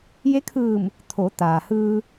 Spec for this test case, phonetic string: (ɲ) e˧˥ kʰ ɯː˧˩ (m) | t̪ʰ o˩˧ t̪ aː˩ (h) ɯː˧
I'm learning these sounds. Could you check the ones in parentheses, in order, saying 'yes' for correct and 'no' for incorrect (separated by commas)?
no, yes, yes